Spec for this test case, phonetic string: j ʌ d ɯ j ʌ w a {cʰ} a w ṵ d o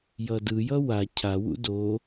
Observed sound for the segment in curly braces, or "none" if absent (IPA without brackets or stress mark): cʰ